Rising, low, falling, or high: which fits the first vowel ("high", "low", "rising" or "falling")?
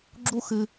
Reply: high